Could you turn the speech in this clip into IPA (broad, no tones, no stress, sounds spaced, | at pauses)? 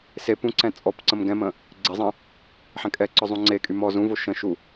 s e p ũ ǀ ɛ̃ t͡sʼ ɔ p ǀ ə̃ m ɡ ɛ̃ m ə̃ | ɡ͡ǀ e zˤ ə̃ | ħ ɛ̃ kʼ ɛ ǀ ɔ zˤ ũ ŋ͡ǀ e kʼ y m ɔ z ũ v o ʃ ə̃ ʃ u